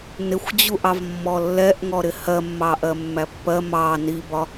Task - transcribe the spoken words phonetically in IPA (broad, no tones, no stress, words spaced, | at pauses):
nɪxʷd͡ʑuʔɑv mːɔlːɛʔŋɔɾɪ hɜmːɑ ʔɜmːæpːɜ mɑ nibɒ